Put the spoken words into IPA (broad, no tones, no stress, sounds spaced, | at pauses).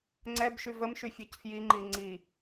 ŋ͡ǀ ɛ b ʃ y v ə m ʃ y fʲ ɔ c f j i ŋ͡ǃ i ŋ͡ǀ i